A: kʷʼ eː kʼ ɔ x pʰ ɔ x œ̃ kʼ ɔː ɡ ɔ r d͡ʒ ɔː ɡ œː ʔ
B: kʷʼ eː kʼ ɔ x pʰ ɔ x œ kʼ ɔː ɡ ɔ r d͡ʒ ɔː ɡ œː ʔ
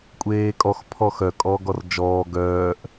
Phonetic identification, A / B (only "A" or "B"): B